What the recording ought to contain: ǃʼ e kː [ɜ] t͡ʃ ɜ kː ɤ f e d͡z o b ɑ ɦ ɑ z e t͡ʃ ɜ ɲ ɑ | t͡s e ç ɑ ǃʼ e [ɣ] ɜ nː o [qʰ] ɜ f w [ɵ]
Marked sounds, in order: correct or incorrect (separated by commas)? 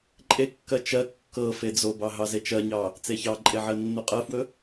correct, incorrect, incorrect, correct